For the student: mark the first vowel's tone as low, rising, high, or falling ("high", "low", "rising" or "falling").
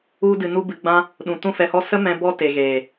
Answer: high